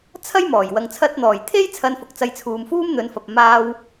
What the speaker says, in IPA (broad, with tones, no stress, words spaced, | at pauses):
t͡sʰɐ˥jmɔː˨˩j wɐ˨ŋt͡sʰɐ˧t̚n̪ɔː˨˩jt̪ʰe˥j t͡sʰɐ˧nfʊ˨k̚t͡sɐ˧jt͡sʰuː˨m fuː˥mn̪ɵ˨˧nfɐ˨p̚ maː˧w